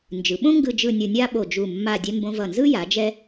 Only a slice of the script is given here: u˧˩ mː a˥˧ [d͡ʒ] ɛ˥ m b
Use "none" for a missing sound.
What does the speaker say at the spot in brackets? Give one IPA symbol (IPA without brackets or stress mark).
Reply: dʲ